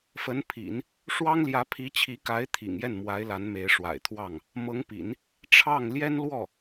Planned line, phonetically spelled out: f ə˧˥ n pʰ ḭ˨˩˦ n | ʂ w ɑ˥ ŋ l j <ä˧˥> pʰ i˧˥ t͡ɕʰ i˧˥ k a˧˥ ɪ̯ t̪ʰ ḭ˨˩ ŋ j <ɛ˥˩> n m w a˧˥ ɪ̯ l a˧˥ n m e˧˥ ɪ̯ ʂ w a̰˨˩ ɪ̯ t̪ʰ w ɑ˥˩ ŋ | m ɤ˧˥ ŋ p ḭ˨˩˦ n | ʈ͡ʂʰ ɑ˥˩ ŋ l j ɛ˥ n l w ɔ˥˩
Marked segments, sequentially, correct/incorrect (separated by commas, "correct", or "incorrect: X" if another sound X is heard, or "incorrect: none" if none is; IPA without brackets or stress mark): correct, correct